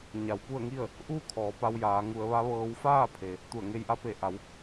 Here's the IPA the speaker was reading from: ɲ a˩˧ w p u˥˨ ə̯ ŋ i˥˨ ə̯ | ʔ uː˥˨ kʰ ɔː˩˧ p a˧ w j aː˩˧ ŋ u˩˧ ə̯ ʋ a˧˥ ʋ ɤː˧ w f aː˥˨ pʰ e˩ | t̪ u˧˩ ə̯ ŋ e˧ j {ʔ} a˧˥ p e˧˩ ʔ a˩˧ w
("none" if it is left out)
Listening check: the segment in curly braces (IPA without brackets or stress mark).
ʔ